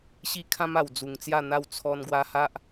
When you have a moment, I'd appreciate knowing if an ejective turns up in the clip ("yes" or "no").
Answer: no